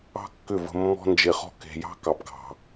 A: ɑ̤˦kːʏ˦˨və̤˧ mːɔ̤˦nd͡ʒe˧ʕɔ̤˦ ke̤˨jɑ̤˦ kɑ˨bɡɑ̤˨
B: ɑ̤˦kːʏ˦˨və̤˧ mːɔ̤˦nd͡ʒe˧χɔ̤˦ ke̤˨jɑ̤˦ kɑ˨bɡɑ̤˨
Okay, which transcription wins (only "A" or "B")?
B